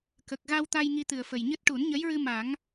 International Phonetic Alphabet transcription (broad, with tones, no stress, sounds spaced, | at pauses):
k ə˨˩ k̚ ɣ a˧ w t̪ a˧ j ŋ i˧ t̪ ɨ˨˩ ə̯ f ə˨˩ j ɲ ɨ˦˥ t̚ ʈ u˨˩˦ n ɲ ə˧˥ j ɹ ɨ˧ m a˨˩˦ ŋ